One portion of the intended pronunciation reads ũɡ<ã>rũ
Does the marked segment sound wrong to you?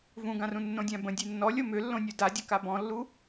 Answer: no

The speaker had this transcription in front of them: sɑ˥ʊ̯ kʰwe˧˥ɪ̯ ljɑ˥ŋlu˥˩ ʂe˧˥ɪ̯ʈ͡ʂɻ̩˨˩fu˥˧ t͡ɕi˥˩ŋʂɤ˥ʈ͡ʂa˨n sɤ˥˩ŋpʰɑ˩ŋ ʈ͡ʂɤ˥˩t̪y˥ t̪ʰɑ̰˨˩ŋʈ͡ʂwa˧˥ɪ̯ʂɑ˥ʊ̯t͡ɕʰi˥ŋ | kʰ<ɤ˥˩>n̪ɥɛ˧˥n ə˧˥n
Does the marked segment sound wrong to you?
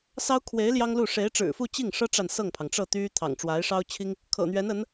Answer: yes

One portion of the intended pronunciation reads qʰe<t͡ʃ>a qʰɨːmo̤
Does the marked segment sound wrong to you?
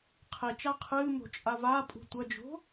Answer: no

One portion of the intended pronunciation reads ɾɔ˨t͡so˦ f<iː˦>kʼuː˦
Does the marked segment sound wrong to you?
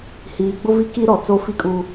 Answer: yes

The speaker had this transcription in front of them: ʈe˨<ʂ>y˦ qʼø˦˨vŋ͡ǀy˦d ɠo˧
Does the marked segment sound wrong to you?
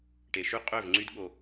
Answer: yes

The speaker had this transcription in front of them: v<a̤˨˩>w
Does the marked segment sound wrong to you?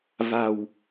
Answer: no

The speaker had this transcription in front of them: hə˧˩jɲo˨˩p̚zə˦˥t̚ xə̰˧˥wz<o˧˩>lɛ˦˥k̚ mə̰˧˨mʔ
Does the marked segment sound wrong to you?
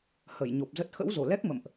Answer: no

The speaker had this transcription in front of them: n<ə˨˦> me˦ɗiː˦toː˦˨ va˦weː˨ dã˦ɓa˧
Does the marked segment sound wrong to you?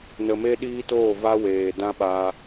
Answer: yes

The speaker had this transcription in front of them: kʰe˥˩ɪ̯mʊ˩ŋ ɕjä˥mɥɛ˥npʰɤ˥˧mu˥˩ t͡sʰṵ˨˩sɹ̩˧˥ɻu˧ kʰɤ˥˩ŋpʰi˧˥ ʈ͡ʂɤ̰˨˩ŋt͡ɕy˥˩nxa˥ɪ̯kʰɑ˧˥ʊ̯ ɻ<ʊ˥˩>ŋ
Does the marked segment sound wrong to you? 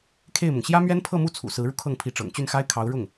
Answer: no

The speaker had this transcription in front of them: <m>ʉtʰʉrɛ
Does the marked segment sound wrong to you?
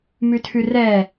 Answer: no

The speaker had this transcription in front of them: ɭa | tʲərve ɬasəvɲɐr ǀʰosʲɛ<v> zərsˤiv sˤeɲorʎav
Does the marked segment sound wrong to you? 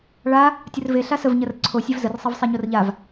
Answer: no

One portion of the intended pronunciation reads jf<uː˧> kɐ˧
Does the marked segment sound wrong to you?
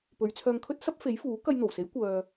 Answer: yes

